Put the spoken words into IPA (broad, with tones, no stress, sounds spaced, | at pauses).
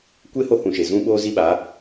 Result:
kʷ e˦ h o˦ h ũ˨ ʃ e˨ z ũ˦ ɓ oː˦ z i˦ ɓ a˨˦